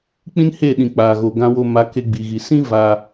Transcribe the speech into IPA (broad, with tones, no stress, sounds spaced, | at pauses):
k͡p ĩ˦ n h e˦˨ ɗ ĩ˨ k͡p a˨ ɣ o˨ ɡ ã˧ w o˧ m a˨˦ k e˧ ɡ͡b i˨ ɣ i˨ s ĩ˦ v a˧